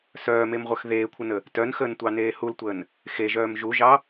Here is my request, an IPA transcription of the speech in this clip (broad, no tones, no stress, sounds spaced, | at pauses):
s œː m e m ʁʷ œ x ð eː kʷʰ ə n ə | t œ n x əː n tʷ ɑ n eː h u l tʷ əː n | x e ʒ œː m ʒ u ʒ ɑ